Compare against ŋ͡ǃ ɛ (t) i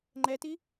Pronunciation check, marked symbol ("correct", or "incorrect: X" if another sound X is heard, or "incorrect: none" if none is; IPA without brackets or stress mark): correct